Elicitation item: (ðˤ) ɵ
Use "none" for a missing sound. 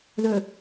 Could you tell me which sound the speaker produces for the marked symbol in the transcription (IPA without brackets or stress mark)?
ð